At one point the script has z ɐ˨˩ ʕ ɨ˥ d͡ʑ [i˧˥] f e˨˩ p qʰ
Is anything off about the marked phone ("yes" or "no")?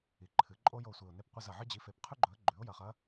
yes